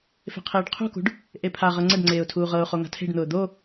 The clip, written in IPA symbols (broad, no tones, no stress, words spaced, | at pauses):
fe̤qʰeːɖqʰṳkṳɖ | ʔepʰaʁɤ ŋ͡ǀəɖ ŋ͡ǀeːʊ̯tʰuːʁɤʊ̯χo ŋa̤tʰe̤ɖn̪ʊː d̪o